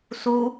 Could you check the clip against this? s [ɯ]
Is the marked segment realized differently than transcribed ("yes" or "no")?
yes